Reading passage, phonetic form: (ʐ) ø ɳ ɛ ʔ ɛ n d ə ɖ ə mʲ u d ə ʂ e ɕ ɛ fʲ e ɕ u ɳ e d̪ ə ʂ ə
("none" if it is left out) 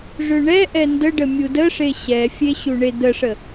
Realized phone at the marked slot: ʐ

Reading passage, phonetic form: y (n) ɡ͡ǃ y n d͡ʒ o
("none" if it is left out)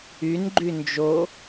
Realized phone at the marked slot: n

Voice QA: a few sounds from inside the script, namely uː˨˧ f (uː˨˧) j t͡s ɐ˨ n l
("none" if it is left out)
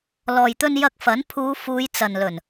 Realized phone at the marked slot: uː˨˧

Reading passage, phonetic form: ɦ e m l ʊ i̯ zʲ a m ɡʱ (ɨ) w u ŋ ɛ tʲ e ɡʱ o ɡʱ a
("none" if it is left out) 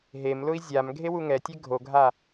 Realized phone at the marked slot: e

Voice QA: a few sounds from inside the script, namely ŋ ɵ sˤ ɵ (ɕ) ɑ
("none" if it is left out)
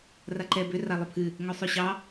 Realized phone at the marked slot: ɕ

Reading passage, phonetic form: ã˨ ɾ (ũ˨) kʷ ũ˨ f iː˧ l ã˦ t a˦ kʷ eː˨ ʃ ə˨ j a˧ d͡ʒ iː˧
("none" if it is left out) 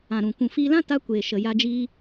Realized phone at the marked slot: ũ˨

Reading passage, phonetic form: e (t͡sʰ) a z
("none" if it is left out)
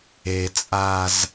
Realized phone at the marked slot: t͡sʼ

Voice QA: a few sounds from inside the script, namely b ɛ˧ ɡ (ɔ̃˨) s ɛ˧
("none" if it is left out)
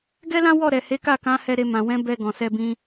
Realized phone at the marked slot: ɔ̃˨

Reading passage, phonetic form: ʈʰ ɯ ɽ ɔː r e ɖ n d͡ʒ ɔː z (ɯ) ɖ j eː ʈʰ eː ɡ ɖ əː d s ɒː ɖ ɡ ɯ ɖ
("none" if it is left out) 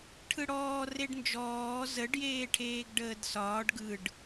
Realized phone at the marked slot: ə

